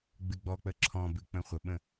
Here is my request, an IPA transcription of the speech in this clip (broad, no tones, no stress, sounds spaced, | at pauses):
ɡ͡b ɨ ɡ͡b ɔ k͡p ə ǁʰ ɔ̃ b ɨ k͡p ə̃ χʷ ə ɓ ə̃